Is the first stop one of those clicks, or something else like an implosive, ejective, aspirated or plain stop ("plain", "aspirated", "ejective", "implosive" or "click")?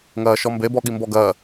plain